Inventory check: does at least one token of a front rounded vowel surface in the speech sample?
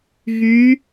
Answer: yes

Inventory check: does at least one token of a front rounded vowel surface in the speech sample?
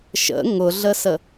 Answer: no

